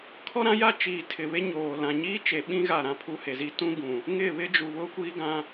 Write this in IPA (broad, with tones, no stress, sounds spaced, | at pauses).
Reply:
kʰ ɔ˦ ɾ ã˦ j a˦ t͡ʃ iː˨ tʰ ɪ˨ β e˦ ɲ oː˨ l ã˨ ɲ iː˦ t͡ʃ e˨ ɓ ĩ˦ ɣ a˦˨ ɾ ã˦ pʰ u˦ h e˨ z i˦ t ũ˦ ɡ ũ˨ | ŋ ɪ˦˨ β ɪ˦ d͡ʒ u˨ β ʊ˦ kʷ iː˦ ɡ ã˦